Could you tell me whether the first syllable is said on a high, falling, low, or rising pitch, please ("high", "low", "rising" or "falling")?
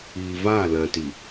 low